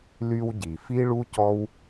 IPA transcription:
l y˧ w ɟ i˨ f i˦ ɭ u˦ c ɔ˦ w

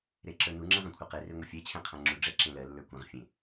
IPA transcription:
ɾ e ǁ ə˞ n u ŋ͡ǁ ɛ̃ ʁ ã kʷʰ ə˞ q e r e ŋʷ ɛ fʲ ɛ t͡ɕʰ ɛ̃ qʰ ã ŋ͡ǁ u ɖ͡ʐ ɛ ǁ ẽ l ɜ lː ə˞ kʷ ɛ̃ ʁ fʲ ẽ

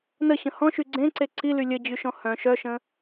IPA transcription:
n ə ɕ ə̃ h ɔ̃ ʃ y ɡ͡ǀ ẽ ǀ e ǀ i l y lʲ ə d͡ʑ y ʃ ɔ̃ h œ̃ ʃ œ ʃ ə̃

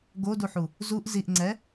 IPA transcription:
ɡ o d u ħ u | z u ʔ z i ʔ ŋ͡ǀ ɛ

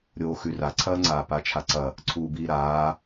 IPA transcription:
ɾʲ oː x ʉ r a ǀʰ ɐː ŋ͡ǀ aː p a t͡ʃʰ a ǀ ɐ | ǀʰ uː b iː ɾ aː

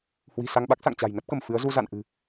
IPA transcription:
h w i̤˨˩ s a˧ ŋ ɓ a˦˥ k̚ s a̰˧˨ ŋ t͡ɕ a̤˨˩ j n ə˦˥ p̚ k ə˧˩ m f ɨ˨˦ ə̯ z u˧ z a̰˧˨ n ʔ ɨ̤˨˩

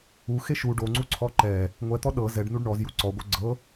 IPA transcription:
u x e ʃ u ɖ o ŋ͡ǀ u ǀʰ ɔ ǃ ɛ | ŋʷ ɛ t̪ ɔ ɗ ɤ z ɛ ɖ n u ɖ ɳ ɔ z j u ǀ ɔ ɡʷ œ ɡ͡ǀ ɤ

